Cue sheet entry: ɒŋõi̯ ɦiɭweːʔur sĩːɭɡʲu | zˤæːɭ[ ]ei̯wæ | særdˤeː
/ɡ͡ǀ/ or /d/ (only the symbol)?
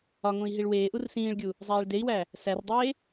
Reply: d